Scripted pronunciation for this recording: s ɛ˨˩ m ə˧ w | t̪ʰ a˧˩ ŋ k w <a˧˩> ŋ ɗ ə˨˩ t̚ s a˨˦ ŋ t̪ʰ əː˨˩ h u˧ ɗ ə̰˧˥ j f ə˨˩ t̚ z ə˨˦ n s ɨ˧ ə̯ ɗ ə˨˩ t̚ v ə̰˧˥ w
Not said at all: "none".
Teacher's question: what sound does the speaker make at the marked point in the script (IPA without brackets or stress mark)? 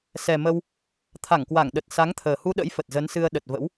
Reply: a˧˩